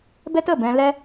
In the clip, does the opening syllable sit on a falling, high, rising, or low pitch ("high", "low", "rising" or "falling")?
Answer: high